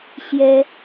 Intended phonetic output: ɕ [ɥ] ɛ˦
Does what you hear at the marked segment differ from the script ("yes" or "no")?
yes